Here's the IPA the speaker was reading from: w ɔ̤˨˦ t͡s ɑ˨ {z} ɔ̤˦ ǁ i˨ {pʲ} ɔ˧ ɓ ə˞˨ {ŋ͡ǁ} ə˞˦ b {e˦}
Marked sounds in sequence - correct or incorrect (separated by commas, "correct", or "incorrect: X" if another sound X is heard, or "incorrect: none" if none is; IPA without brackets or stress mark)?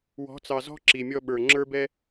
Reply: correct, incorrect: mʲ, correct, incorrect: ɛ˦